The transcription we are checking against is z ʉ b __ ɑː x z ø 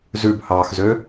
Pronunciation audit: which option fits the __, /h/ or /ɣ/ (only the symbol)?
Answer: h